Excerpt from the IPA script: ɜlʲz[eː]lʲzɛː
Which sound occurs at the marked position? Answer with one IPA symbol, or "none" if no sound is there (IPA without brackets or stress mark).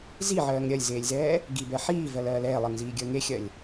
eː